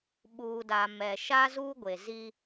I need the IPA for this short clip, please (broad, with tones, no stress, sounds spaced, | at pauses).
ɓ uː˨ d a˨ m ɛ˨ ʃ a˦ z uː˦ ɡʷ e˨ z i˦